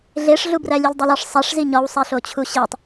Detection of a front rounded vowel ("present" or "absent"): absent